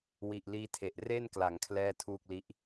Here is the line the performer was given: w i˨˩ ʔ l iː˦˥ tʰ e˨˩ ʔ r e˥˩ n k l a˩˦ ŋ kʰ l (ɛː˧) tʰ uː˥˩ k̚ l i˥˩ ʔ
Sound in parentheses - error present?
yes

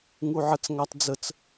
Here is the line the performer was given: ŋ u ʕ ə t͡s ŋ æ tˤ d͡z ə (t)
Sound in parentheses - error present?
yes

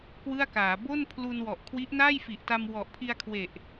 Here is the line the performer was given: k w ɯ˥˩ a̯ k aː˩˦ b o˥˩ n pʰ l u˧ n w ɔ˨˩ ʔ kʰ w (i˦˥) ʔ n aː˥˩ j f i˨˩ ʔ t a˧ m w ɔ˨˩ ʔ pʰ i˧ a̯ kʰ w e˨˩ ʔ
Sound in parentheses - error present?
no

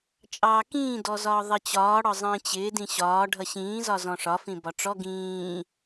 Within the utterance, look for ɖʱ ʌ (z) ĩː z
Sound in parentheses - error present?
yes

